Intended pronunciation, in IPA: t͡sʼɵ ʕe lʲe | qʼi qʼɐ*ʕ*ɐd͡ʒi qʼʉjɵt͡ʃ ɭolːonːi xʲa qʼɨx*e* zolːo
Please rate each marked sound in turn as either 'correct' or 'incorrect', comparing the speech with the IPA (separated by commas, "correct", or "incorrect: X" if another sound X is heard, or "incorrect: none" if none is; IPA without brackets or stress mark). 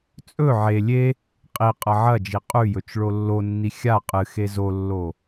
correct, correct